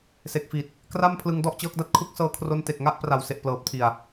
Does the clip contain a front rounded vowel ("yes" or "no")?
no